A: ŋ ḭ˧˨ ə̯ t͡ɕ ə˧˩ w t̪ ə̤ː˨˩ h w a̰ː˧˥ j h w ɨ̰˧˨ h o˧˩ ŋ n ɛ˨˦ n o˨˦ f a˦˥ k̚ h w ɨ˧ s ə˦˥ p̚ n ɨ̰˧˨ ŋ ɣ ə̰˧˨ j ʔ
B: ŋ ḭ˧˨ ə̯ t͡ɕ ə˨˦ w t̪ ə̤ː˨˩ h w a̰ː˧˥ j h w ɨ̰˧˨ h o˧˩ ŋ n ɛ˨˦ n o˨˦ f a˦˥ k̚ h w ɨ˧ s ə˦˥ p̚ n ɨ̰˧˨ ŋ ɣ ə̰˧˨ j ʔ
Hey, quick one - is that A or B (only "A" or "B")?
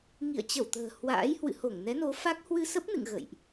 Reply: A